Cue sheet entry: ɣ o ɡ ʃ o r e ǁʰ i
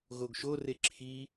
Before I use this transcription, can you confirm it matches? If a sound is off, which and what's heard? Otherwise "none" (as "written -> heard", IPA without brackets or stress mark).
none